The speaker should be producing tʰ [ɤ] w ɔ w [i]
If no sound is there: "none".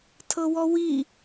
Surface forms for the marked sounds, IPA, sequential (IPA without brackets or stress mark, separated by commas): ɤ, i